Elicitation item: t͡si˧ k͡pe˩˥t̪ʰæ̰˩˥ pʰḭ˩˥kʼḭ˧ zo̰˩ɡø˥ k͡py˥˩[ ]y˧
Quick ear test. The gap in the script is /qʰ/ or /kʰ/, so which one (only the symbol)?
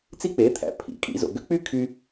kʰ